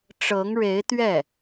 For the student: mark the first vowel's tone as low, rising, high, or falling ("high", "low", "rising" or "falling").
rising